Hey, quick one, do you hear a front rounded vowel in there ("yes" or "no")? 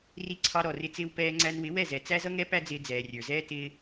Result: no